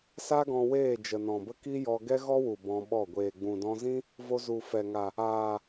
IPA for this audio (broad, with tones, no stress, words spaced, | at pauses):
sa˦ɡɔ̃˧ weː˦˨d͡ʒə˨nɔ̃˨bə˦ ki˦jɔ˧ ɡɛ˦ɣɔ˦wu˨ bɔ̃˧ɓɔ˦˨ ɡʷeː˨ɡ͡bũ˨dɔ̃˧zĩ˦ | vo˧zu˨fɛ˨ŋa˨ | aː˨